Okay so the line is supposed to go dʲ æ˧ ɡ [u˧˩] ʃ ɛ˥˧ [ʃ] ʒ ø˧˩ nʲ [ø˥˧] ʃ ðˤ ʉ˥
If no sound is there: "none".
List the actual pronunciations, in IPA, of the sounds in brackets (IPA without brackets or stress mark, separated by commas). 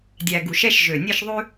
u˧˩, ʃ, e˥˧